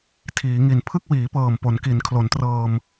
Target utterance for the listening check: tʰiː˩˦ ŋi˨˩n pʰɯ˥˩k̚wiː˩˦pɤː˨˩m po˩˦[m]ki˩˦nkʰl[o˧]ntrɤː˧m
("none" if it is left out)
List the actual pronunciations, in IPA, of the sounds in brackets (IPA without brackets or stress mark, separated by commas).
n, o˩˦